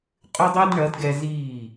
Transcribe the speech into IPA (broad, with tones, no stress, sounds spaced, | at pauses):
qʼ ʏ˥ dˤ i˥ d ɳ ɐ˩˥ d ɡ ɛ˧ z iː˥˩